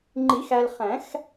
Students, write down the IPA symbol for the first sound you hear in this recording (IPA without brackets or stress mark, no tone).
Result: ŋ͡ǃ